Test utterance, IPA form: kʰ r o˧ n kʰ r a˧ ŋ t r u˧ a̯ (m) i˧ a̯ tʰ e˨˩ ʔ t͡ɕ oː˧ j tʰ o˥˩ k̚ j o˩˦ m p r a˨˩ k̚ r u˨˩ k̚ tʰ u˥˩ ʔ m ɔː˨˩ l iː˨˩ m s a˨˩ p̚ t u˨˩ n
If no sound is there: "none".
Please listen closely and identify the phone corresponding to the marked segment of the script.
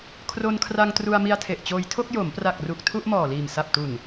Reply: m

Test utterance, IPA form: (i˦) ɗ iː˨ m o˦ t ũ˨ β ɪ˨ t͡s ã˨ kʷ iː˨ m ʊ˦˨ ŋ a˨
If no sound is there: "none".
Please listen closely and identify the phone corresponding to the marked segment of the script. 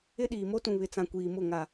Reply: ɪ˦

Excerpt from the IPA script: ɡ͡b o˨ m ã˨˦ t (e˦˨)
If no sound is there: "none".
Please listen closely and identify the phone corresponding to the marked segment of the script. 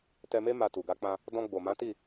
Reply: i˦˨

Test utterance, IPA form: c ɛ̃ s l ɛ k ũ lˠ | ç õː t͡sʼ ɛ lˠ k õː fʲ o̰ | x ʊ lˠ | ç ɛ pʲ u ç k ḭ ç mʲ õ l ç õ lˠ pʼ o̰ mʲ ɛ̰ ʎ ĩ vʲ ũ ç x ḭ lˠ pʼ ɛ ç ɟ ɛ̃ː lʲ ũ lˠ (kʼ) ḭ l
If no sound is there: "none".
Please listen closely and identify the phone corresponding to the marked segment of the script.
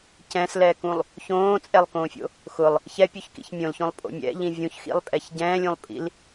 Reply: pʼ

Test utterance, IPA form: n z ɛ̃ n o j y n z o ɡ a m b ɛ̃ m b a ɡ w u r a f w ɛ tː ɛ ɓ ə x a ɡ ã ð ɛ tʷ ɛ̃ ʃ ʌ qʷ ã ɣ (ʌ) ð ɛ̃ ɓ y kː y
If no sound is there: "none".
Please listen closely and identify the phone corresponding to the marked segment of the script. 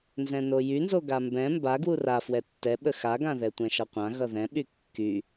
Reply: ʌ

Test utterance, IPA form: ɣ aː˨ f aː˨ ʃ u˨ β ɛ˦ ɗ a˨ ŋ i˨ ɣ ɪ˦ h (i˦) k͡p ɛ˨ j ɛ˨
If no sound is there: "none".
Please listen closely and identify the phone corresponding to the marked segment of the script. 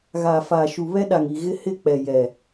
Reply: ɪ˦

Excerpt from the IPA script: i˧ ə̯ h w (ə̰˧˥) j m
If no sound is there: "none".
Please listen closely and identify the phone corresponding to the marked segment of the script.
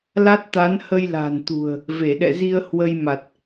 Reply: ə˧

